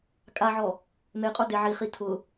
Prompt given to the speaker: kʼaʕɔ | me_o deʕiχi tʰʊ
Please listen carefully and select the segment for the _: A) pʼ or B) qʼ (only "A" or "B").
B